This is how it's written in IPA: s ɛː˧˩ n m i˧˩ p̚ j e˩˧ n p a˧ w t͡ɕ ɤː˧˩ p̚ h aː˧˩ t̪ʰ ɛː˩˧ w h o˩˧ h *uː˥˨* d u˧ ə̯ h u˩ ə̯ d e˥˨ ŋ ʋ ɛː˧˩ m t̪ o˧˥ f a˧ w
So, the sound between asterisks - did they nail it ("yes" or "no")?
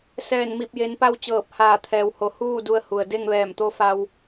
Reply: yes